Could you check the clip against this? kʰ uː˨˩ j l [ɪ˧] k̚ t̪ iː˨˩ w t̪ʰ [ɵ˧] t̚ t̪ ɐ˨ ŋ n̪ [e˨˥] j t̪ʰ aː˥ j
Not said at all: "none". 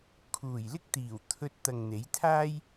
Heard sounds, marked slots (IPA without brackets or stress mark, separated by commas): ɪ˥, ɵ˧, e˨˥